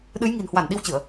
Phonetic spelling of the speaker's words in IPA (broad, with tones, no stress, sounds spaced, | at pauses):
ɗ ɨ˨˦ j ŋ i̤˨˩ n h w a˧˩ n ɗ i˧ w t͡ɕ ɨ˧˩˨ ə̯